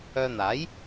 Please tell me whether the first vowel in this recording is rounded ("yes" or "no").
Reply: yes